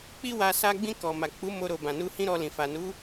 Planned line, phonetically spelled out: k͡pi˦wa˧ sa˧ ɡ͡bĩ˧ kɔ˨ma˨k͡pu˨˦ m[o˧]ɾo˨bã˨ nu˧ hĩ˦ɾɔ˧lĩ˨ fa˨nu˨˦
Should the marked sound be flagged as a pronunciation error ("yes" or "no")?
no